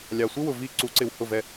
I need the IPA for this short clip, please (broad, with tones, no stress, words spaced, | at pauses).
lʲɑ˨sʷɪ˥wʊ˨ vi˦˨ ǀu˨˩˦ ǀɪ˨w hʊ˦˨vɛ˦˨